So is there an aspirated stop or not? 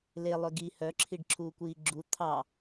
yes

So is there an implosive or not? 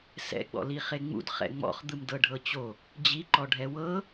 no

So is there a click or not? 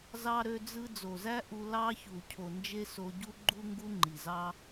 yes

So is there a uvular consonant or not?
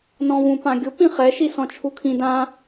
yes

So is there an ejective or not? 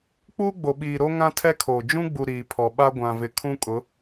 yes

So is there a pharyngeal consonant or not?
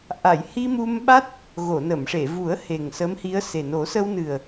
no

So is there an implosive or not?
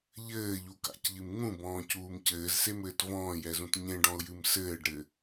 no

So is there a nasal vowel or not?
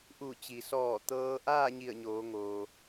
no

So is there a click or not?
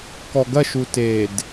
no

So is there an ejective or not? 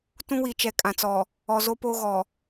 yes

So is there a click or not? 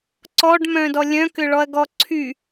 yes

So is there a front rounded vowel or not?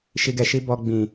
no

